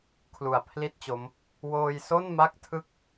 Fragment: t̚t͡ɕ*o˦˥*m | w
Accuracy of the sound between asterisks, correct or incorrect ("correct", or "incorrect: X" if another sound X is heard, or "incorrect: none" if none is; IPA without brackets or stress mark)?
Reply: correct